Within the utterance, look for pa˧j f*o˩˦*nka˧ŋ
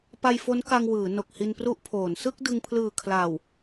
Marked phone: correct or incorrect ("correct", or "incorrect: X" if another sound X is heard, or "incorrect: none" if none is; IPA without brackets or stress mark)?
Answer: incorrect: o˦˥